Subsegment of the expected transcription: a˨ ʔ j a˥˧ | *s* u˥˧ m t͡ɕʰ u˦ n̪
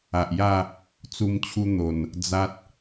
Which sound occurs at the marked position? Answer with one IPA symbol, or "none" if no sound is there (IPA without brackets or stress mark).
t͡s